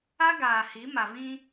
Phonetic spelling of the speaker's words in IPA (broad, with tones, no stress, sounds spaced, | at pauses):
a˦ ɡ aː˨ h i˨˦ m a˨ v ĩ˦